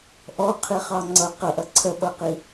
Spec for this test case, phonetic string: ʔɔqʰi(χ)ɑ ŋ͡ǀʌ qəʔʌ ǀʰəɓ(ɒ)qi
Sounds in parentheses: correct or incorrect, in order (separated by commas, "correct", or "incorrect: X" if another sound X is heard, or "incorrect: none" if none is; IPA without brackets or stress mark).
correct, incorrect: ʌ